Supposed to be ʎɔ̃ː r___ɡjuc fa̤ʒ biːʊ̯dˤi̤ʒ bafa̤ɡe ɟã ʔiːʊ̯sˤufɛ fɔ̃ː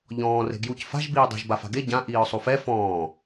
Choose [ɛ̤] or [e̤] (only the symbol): e̤